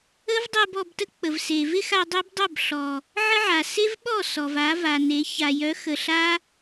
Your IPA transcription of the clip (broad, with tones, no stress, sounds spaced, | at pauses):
ə˦ v dˤ e˧ b ɔ˧ b t ə˦ k͡p ə˨ v s e˨ v ɪ˦ x a˧ dˤ e˦ b dˤ œ˦˨ b ɬ ɔ˨ | ʕ ə˦ ʕ a˨ s e˦ v ɓ ɔ˦˨ s ɔ˨ v a˨˦ v a˨ n e˨˦ ç a˨ j œ˨˦ x ə˨ ɬ a˦